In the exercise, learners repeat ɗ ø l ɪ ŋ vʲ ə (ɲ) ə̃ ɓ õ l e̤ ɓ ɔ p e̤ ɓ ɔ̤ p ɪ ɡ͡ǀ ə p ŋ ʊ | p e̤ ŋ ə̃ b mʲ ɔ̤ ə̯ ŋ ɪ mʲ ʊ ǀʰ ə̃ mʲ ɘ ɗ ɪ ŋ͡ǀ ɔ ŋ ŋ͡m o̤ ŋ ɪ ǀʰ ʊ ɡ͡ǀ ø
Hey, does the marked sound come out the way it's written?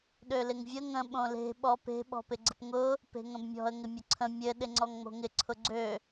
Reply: no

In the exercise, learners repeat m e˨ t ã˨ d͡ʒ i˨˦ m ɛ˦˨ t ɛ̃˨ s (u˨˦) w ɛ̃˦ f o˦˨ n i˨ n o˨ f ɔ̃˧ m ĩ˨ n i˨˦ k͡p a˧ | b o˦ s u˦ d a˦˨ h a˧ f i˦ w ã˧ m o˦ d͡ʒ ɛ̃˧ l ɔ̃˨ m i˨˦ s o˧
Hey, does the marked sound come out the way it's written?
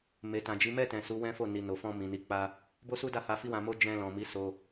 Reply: yes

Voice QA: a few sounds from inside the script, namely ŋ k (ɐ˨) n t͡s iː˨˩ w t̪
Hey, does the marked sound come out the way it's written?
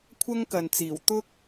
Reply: yes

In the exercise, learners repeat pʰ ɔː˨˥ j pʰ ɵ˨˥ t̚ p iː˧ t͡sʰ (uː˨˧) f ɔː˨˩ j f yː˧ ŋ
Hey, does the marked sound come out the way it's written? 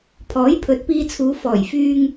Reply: yes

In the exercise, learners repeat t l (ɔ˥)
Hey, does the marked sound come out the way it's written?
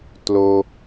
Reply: no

